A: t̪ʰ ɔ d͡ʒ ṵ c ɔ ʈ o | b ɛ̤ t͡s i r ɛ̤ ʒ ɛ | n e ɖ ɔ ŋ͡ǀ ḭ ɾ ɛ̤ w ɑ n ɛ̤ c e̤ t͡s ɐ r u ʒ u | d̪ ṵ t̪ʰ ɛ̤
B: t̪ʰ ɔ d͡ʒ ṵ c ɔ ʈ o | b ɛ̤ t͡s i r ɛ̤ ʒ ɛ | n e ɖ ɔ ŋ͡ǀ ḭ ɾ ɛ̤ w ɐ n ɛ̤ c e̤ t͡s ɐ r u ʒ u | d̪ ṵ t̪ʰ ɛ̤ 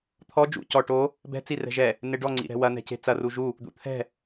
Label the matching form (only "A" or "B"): B